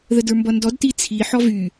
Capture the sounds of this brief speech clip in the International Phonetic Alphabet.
ð ə d ə˞ m b ʌ n d ɔ d t i t͡sʰ i ħ ɔ v y

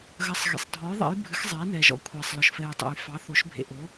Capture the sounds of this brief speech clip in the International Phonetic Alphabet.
ɣ ɐ˩˧ sˤ ɣ ḛ˩ sˤ dʱ ɔ˩˧ j ðˤ ɛ̰˩˧ j bʱ ɨ˩˧ x zˤ ɛː˩˧ n ɛː˩ ʒ ɔ̰˩˧ kʷʰ ɛː˩ sˤ l ɔ˩ ʃ f ɛː˩ j tˤ ɛ̰˩ j f ɑ˩˧ θ o˩˧ ʃ bʱ ḛ˩ ʔ o˩˧

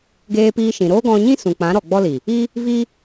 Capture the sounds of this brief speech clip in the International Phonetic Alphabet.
ɡ eː˧ p iː˧ ʃ ĩ˨ ɾ oː˦ ɡ ɔ̃˧ ɲ ĩ˦ s ũ˨ k͡p ã˨˦ ɾ ɔ˨ ɡ͡b ɔ˦ l i˨ | i˦ | v i˦

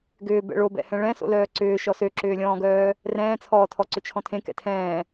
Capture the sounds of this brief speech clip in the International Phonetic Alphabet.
ɡ ʏː b ɛ̰ ɭ o b ɛ̰ h ɛ̃ ɭ ɛ̃ s o̰ l œː ǀ ʏː ʃ ɔ s ø ǁ ʏː lʲ ɔ̃ː ɡ œː | r ɛ̃ː t͡sʰ ɔː tʰ ɔ ǀ ʏ t͡ʃʰ ɔ̃ tʰ ẽ k ɛ̰ tʰ ɛ̃ː

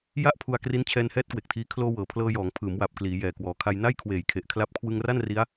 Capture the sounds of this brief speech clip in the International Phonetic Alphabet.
j a˥˩ ʔ pʰ u˧ a̯ k r i˦˥ n t͡ɕʰ ɛː˧ n h ɛː˦˥ t̚ k w e˨˩ k̚ tʰ iː˧ kʰ l oː˧ w ɤː˩˦ pʰ l ɤː˧ j ɔː˩˦ ŋ pʰ ɯː˩˦ m w a˨˩ p̚ k l iː˩˦ j ɛː˨˩ k w ɔː˩˦ kʰ a˧ j n a˥˩ j kʰ w eː˨˩ j kʰ e˨˩ ʔ kʰ l a˦˥ p̚ kʰ w ɯ˧ ŋ r a˥˩ n r i˦˥ a̯

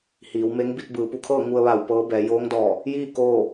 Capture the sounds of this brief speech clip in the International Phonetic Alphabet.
h iː˩˧ w m e˧˥ ŋ b i˧ t̚ b ɯː˩˧ p u˩˧ kʰ ɤː˥˨ ŋ u˧ ə̯ ʋ a˧˩ w p ɤː˧˥ b ɛː˩˧ j oː˧˥ ŋ d ɔː˧˩ | j iː˥˨ k oː˥˨

